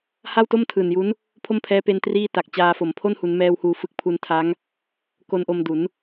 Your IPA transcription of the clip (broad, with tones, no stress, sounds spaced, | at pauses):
h a˥˩ w t o˥˩ m tʰ ɯː˨˩ n j u˦˥ n | pʰ o˥˩ m pʰ ɛː˦˥ p e˦˥ n t r iː˥˩ t a˨˩ k̚ t͡ɕ aː˧ f o˩˦ m pʰ o˥˩ n h u˩˦ n m ɛː˧ w h uː˧ f ɯ˦˥ k̚ pʰ u˧ n tʰ a˦˥ ŋ | k o˧ n ʔ o˧ m d u˩˦ n